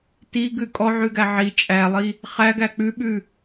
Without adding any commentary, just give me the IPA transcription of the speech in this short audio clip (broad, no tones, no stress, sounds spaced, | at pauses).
t i ɡ ʉ kʼ ɔ ʕ ʉ ɡ æ ʕ i t͡ʃʼ æ lˠ i | χ æ ɡ æ k͡p ʉ ɓ ʉ